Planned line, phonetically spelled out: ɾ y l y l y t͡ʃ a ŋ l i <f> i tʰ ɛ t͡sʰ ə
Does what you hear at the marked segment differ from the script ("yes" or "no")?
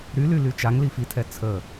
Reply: no